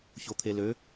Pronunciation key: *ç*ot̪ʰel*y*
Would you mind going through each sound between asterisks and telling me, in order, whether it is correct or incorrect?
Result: correct, incorrect

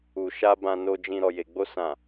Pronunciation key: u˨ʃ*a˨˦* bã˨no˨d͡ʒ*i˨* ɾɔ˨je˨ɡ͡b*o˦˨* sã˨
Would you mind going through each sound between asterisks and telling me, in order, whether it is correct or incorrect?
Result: incorrect, incorrect, incorrect

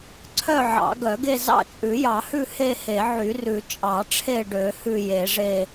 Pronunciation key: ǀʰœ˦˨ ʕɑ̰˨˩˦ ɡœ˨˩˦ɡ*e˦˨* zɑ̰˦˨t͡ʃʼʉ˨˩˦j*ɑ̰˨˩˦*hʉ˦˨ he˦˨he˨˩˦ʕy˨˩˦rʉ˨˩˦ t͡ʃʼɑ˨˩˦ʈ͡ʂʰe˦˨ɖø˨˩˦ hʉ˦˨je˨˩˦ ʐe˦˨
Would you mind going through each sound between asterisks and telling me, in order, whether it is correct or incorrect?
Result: correct, incorrect

